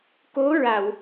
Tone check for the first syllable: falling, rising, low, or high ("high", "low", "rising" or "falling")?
rising